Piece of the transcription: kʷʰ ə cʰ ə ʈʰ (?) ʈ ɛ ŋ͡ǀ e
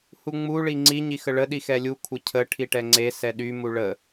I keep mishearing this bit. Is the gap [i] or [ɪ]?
i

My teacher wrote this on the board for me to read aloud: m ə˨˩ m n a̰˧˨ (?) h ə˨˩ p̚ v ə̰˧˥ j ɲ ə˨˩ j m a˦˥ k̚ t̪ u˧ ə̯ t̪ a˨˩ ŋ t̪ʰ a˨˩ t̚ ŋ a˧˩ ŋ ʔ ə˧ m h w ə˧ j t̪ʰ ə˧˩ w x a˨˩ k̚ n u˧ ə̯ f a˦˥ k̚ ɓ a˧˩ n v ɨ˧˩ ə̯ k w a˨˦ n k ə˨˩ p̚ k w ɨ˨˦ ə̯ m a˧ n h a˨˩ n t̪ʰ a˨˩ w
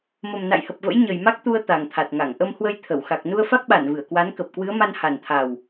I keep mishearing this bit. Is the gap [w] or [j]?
j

